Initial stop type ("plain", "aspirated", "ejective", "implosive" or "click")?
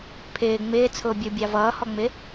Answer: aspirated